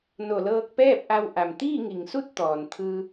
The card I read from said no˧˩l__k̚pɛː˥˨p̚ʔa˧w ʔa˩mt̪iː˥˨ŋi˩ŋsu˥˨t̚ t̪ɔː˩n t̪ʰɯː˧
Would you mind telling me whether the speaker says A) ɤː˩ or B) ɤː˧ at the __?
B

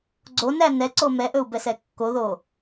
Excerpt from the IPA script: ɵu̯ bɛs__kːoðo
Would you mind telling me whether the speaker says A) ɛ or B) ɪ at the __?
A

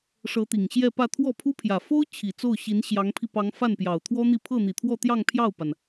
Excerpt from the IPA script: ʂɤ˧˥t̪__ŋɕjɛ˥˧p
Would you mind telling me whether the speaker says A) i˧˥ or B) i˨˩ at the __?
B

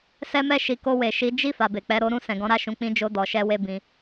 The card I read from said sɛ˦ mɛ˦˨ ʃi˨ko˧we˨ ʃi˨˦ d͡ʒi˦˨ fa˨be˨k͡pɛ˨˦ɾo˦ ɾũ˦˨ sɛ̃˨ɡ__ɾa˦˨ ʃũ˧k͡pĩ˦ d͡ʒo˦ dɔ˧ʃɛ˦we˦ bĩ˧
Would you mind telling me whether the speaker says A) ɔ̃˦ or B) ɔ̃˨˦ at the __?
B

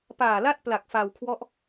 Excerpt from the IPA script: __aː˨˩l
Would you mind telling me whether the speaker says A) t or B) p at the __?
B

